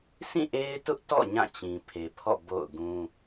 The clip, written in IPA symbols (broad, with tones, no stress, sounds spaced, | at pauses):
s ĩ˦˨ ʔ e˦ ɪ̯ t ʊ˦ ʔ t ɔ̰˦˨ ɲ ã˦˨ t͡ɕ ĩ˨ pʰ e˨ pʰ ɔ̰˦˨ b o̰˦˨ ʊ̯ ɡ ũ˦